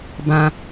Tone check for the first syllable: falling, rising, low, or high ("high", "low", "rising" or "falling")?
low